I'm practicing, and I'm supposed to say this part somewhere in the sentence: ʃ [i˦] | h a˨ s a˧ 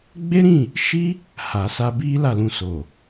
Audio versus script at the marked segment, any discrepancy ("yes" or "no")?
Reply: no